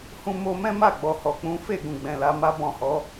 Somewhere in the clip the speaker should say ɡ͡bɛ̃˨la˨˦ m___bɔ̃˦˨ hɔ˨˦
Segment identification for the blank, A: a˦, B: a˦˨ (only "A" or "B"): A